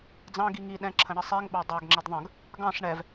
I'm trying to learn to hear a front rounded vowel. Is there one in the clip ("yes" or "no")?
no